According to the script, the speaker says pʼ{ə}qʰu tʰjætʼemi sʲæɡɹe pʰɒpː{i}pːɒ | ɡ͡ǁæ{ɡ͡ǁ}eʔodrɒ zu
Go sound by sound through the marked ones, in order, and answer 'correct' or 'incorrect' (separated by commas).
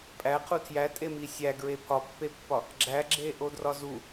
incorrect, incorrect, correct